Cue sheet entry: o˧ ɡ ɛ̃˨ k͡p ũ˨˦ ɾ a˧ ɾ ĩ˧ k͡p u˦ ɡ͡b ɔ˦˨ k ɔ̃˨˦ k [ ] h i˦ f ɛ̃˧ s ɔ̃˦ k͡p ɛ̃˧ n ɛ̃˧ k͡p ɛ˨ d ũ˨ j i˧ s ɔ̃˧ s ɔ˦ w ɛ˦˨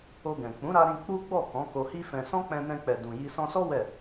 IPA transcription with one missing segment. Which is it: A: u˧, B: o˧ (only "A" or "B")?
B